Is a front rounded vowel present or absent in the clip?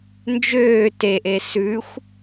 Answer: present